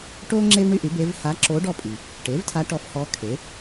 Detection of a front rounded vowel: present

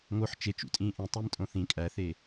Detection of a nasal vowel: present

